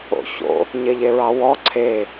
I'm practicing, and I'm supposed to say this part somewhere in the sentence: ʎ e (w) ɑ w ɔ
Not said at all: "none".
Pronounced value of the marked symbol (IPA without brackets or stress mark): ɹ